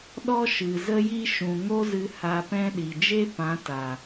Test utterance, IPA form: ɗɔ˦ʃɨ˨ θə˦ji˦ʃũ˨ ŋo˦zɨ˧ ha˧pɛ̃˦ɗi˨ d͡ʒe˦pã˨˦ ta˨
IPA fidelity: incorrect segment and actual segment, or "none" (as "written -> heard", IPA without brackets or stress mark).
θ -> z